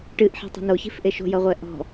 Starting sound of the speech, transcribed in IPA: ʈ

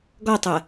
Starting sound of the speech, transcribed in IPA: ɡ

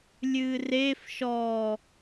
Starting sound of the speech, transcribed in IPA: lʲ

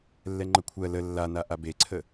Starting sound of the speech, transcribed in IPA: lː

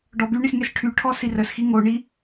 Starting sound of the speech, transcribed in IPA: ɖ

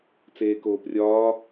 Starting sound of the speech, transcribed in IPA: t͡s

